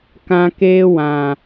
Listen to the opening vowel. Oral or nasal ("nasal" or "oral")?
nasal